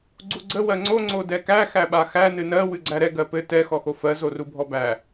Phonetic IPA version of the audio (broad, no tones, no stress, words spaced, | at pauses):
ɡ͡ǀuɡ͡ǀə wɜŋ͡ǀo ŋ͡ǀodɛkæ xæɓaxæ nɨnɜ wɨɡ͡ǀæɾɛ ɡɜpɘ tɛ xɔxofɜ zorubʱɔbæ